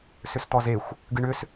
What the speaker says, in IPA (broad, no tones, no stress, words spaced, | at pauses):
sʏst̪ɔzexʷ | ɡɨɳʏs